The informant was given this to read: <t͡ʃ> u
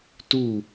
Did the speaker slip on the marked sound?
yes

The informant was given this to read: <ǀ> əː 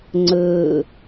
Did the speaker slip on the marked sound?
yes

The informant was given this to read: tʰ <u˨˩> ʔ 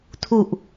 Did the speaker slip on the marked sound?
no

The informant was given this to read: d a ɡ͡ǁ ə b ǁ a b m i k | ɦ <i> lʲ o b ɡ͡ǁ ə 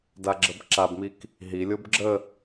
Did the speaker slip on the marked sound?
no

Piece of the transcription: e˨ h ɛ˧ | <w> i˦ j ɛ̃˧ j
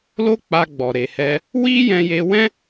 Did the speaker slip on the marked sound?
no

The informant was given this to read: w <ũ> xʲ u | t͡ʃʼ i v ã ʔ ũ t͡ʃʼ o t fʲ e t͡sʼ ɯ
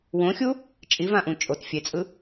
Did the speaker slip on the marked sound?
yes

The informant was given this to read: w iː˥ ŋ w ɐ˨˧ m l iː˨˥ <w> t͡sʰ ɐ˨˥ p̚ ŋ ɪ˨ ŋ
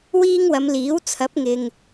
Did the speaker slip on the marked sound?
no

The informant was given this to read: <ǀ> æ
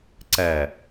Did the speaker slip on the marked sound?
no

